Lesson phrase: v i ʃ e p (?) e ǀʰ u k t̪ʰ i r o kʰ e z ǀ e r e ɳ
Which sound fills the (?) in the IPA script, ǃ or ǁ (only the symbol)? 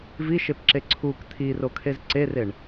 ǁ